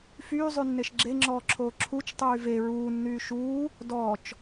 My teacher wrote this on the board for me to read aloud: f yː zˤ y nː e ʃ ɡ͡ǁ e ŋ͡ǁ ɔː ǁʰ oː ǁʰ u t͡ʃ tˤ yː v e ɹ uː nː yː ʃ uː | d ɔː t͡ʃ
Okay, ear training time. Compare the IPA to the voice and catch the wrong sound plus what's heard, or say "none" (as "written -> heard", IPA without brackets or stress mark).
none